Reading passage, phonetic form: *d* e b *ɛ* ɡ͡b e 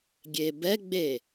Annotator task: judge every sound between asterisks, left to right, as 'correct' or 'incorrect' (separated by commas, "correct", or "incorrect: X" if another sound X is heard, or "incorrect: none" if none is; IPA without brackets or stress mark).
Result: incorrect: ɡʲ, correct